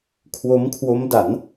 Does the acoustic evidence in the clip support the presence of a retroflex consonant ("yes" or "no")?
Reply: no